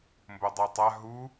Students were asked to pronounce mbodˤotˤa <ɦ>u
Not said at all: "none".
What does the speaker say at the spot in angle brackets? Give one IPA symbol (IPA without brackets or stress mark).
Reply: ɦ